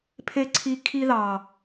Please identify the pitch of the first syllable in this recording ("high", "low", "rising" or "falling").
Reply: high